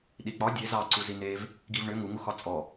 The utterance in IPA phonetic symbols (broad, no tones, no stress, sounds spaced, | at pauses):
ɗ i k͡p ɒ dʲ e z ɑ ǀ u z i n e v | ɡ i v ɳ ʏ ŋ u ŋ u x ɒ t͡sʼ ɔ